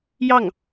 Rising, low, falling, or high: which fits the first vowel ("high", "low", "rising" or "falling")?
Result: falling